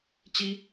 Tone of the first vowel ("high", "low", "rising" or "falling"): high